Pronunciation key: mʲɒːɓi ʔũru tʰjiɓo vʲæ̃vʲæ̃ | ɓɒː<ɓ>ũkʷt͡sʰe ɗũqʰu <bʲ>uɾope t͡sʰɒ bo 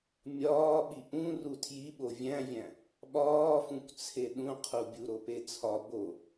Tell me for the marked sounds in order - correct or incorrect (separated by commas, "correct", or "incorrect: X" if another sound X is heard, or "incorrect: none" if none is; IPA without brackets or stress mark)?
incorrect: f, correct